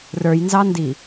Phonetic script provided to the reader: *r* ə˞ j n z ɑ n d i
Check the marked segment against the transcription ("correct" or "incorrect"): correct